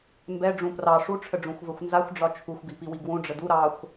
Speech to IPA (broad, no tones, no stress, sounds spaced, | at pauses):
m b ɛ ɖ͡ʐ ũ p r ɑ ʂ u ʈ͡ʂʰ ə ɖ͡ʐ ũ xʷ v ə xʷ n z a xʷ ɖ͡ʐ ɒ t͡ʃʰ u xʷ ɡ i p i w i ɡ w ũ ɖ͡ʐ ə d u ɾ ɑ xʷ